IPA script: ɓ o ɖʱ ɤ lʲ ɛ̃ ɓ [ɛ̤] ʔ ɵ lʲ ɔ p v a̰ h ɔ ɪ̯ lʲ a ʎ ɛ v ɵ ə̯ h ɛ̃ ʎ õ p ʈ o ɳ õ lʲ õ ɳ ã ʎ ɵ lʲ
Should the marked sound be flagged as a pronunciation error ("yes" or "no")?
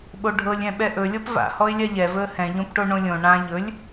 yes